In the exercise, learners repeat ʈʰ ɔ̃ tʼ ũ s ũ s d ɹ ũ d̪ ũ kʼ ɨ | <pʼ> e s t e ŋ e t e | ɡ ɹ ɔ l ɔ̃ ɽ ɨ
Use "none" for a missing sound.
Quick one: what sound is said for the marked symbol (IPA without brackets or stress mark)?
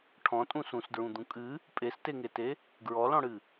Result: pʼ